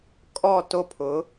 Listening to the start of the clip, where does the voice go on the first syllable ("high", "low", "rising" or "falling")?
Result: falling